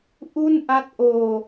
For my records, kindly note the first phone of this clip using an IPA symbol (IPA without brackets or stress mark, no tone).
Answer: ʔ